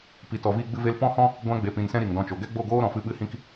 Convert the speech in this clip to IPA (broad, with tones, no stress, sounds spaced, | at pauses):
p i˨ t ɔ˨ v iː˧ ɡ͡b ɨ˧ v e˧ l p ɔ̃˦ h ɔ̃˦ | ɡʷ ã˧ ɡ͡b e˨ p ĩ˨ n s ɛ̃˦ ɾ i˨ ŋ d ɔ̃˧ t͡ʃ o˨ ɡ ɛ˦ ɡ͡b o˦˨ ɡ oː˦ ɾ ɔ̃˨ f ɨ˦ ɓ ɨ˦ h ĩ˦ k